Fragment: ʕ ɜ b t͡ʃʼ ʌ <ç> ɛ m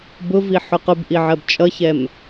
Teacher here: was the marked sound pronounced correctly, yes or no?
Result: yes